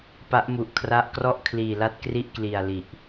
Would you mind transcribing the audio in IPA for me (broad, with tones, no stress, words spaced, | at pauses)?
pa˦˥ʔmu˨˩ʔkʰra˦˥ʔ krɔ˥˩ʔkʰliː˨˩la˦˥t̚ kri˥˩ʔkli˨˩a̯ li˨˩ʔ